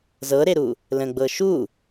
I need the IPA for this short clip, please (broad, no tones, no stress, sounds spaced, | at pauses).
z ɤ ɾ e ɾ u | l ə̃ ɡ͡b ɤ ʃ u